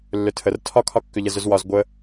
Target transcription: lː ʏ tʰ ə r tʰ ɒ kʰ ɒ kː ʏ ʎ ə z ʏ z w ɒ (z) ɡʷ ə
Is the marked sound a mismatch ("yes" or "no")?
no